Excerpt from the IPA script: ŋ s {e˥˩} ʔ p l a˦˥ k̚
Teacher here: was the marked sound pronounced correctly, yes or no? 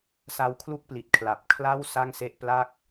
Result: yes